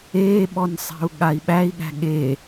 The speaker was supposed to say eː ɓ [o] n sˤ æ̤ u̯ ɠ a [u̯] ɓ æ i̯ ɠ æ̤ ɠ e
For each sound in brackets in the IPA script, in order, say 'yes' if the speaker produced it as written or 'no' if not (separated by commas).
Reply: no, no